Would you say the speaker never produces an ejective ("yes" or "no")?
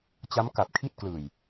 yes